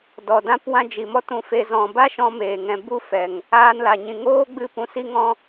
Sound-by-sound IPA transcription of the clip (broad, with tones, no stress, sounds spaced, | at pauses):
d ɔ˨ d ã˧ p w ã˦ d͡ʒ i˨ m ɔ˦ t ũ˧ f e˧ z ɔ̃˨ b a˦ ʃ ɔ̃˦ m eː˨ ŋ ɛ̃˧ b u˦ f ɛ˨ ŋ | aː˧ n l a˨ ɲ ĩ˨ ŋ oː˦ ɡ͡b ɨ˦ p ũ˧ s i˦ ŋ ɔ̃˦